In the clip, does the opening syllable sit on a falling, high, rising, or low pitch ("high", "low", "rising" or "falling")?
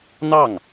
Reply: falling